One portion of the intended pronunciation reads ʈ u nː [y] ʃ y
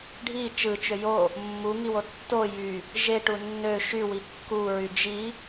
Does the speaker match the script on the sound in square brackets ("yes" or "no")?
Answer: no